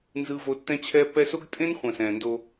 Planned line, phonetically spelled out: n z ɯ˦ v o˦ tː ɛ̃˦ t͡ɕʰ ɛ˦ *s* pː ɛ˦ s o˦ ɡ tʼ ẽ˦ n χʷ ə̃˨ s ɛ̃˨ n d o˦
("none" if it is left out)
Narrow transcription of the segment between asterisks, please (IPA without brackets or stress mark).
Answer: none